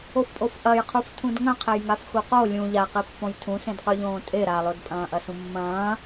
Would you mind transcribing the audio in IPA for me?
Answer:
o f pʼ o f ʔ ɐ j qʰ u f tʰ ũ d ŋ ɐ̃ qʰ e j ŋ a f x u q o lʲ ũ ʎ a q i pː õ j tʰ ũ s ẽ d q ʉ ʎ õː tʼ e ɾ a lˠ o d pʼ ɐ̃ː ʔ ɐ s ũ mː ɐ̃ː

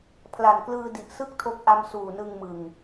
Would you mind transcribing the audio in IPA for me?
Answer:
pʰ l a˨˩ n k l ɯː˧ d i˨˩ ʔ s ɯ˥˩ k̚ tʰ o˦˥ k̚ ʔ a˧ m s uː˨˩ n ɯ˧ ŋ m ɯ˨˩ ŋ

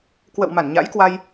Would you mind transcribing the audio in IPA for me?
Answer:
k w ə̰˧˨ w m a˧˩ n ɲ a̰˧˥ j k w a˧ j

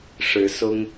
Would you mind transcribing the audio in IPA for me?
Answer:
ʂ ɻ̩˨˦ s ʊ˦ ŋ

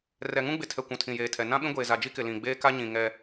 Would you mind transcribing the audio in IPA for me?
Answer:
r ɛ˨ ŋ ũ˦ ɡ͡b ɪ˨ tʰ ɛ˨ kʷ ũ˨ tʰ ĩ˨ j eː˨ tʰ ɛ˨ n ã˦ ɓ ĩ˦ ɡʷ eː˨ z a˨ d͡ʒ i˦ k ɪ˨ l ĩ˨ ɡ͡b eː˦ k a˦ ɲ ĩ˨ ŋ ɛ˦

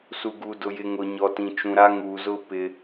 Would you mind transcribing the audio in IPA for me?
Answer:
s u˨ ɡ uː˨ d ʊ˨ j ɪ˨ ŋ ʊ˨ ɲ ɔ˨ t ĩ˨ t͡ʃ ũ˨ ɾ a˦ ŋ uː˨ z ʊ˦ p ɪ˦

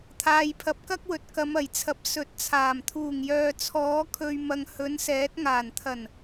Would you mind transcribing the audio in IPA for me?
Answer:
t̪ʰ aː˨ j pʰ ɐ˨˥ p̚ k ɐ˥ k̚ w ɵ˨ t̚ k ɐ˨˧ m ɐ˨˩ j t͡sʰ ɐ˨˥ p̚ s ɵ˨˥ t̚ t͡sʰ aː˨˩ m t̪ʰ uː˨˩ ŋ j œː˨ t͡sʰ ɔː˨˥ kʰ ɵ˨ ɥ m ɐ˨ ŋ h ɵ˨˥ n s ɛː˨˥ t̚ ŋ aː˨˩ n t̪ʰ ɐ˨˩ n

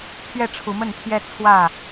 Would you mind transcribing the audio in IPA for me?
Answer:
t̪ʰ ɥ ɛ˥˨ ʈ͡ʂʰ u˨˦ m ə˥˨ n t̪ʰ j ɛ˦ t͡sʰ w ä˥˨

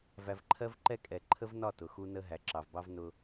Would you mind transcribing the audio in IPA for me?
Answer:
v æ˨ v ǃʰ ɜ˦ v ǃ ɛ˦ kʼ ɛ˨ ǃʰ ə˦ v n ɒ˦˨ t ʊ˨ x u˦ n ə˦ ɦ æ˨ ǁ ɑ˨ v b ɑ˦ v n ʊ˦

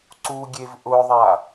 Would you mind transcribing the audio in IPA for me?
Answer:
ǀ u ɡʲ e v ʔ ʊ ðˤ a

